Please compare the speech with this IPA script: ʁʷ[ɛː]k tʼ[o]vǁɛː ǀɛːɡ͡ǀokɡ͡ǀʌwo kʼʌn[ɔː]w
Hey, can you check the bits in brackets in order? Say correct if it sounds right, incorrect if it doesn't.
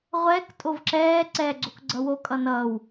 correct, correct, incorrect: ʌː

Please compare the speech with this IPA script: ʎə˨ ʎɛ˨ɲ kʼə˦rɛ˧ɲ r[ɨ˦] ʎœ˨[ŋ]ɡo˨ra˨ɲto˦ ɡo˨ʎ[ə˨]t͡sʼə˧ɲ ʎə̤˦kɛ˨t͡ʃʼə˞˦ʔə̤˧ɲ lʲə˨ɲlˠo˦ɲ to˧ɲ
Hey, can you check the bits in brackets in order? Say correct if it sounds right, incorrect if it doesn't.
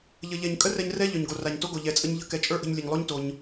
incorrect: ɛ˦, incorrect: ɲ, incorrect: ɛ˨

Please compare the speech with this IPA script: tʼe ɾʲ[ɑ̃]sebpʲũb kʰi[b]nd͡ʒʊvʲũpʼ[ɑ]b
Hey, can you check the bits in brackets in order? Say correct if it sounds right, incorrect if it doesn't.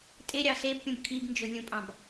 incorrect: ɑ, correct, incorrect: ɑ̃

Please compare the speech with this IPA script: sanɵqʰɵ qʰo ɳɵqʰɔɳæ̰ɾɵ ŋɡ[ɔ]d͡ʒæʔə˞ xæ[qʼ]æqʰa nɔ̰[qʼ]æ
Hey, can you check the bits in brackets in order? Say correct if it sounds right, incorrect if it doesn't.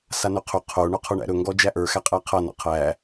correct, correct, incorrect: qʰ

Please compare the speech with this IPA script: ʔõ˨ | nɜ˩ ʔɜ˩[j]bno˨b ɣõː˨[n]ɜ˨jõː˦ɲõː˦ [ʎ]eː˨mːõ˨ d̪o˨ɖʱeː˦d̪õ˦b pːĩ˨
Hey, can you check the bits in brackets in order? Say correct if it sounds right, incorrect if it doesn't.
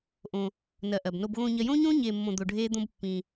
incorrect: none, incorrect: ɲ, incorrect: ɲ

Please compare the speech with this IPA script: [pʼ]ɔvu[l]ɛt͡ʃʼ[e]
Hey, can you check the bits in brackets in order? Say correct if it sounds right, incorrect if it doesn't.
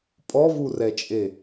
correct, incorrect: r, correct

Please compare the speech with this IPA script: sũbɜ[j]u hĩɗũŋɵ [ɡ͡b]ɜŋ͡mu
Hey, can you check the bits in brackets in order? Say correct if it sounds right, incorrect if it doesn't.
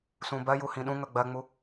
correct, correct

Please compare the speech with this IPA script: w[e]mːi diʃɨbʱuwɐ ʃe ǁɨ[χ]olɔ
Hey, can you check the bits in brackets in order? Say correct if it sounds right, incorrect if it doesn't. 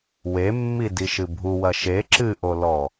correct, incorrect: ʔ

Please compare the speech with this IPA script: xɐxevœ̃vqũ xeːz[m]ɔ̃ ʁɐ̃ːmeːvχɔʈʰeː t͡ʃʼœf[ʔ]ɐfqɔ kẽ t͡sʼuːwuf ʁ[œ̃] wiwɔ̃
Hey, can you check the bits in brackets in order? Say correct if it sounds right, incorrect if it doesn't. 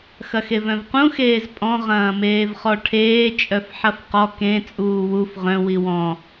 incorrect: pʼ, incorrect: ħ, correct

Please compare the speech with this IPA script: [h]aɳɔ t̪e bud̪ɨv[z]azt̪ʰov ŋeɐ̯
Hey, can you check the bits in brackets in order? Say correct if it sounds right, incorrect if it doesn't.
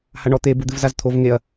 correct, correct

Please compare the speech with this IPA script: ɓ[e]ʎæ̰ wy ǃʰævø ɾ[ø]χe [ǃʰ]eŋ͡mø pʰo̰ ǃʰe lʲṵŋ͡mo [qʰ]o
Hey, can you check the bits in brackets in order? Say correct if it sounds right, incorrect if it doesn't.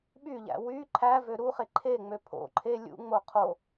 incorrect: y, incorrect: u, correct, correct

